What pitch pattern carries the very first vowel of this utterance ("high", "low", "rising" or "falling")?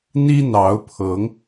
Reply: high